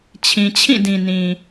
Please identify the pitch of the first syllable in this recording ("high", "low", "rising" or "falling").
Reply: low